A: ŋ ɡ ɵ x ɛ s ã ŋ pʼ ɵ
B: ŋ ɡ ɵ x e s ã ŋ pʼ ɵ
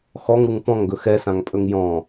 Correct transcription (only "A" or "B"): A